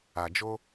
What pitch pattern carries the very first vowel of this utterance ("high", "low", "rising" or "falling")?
low